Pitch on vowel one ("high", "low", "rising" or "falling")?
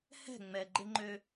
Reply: falling